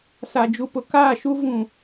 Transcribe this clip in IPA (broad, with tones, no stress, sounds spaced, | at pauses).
s a˨ d͡ʒ u˨ p ʊ˨ k aː˦˨ ʃ u˦ v ũ˨